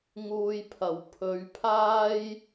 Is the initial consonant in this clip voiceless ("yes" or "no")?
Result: no